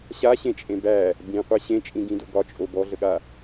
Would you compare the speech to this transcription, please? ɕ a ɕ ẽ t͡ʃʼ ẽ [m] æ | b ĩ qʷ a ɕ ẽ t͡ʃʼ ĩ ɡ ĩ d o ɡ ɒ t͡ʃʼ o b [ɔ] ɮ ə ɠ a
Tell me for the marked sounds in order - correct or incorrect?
incorrect, correct

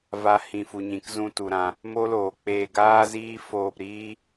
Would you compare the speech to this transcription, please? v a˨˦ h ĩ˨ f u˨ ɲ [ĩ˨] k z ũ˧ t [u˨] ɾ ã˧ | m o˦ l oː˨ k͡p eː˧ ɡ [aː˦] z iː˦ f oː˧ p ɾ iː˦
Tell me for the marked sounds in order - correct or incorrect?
correct, correct, correct

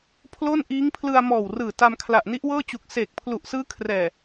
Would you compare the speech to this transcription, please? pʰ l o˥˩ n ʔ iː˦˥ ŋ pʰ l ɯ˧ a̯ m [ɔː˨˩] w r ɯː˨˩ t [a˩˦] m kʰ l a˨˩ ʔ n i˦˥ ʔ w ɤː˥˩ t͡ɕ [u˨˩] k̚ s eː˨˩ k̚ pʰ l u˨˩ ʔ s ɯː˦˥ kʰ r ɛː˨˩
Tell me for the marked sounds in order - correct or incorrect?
correct, incorrect, correct

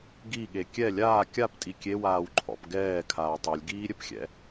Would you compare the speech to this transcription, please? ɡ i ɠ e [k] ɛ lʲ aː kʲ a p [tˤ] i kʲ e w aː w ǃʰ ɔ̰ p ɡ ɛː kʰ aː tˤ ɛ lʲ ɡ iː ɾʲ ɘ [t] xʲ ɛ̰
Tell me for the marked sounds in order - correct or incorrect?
incorrect, incorrect, incorrect

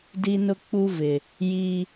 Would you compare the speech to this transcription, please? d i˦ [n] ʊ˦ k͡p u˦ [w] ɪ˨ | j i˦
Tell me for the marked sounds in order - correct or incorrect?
correct, incorrect

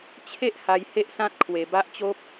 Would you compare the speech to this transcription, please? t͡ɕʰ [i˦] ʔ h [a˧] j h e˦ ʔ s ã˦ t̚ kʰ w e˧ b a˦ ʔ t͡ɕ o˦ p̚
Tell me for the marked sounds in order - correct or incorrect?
incorrect, correct

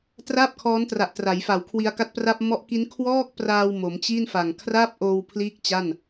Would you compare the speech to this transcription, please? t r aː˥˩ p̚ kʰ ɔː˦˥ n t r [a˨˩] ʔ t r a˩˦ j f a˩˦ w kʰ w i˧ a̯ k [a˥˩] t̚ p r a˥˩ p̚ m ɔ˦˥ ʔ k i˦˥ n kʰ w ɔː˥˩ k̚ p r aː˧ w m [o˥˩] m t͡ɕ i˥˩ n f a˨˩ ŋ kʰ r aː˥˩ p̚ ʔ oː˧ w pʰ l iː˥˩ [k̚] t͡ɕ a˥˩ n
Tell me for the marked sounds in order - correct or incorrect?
correct, correct, incorrect, correct

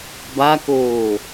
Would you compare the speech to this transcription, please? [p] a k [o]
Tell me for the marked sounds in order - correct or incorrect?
incorrect, incorrect

